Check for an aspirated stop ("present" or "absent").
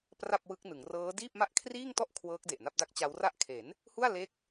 present